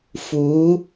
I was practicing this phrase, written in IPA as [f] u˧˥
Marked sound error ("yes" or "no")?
no